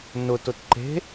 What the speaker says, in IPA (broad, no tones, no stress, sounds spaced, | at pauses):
n ʊ t ʊ t ǃ e̤